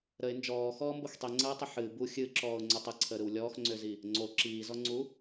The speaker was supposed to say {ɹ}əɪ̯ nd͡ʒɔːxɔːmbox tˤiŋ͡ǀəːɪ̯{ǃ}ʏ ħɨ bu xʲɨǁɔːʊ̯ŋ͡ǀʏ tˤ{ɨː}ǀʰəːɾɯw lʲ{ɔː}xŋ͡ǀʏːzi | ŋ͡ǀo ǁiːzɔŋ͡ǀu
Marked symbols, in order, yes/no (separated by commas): no, no, no, yes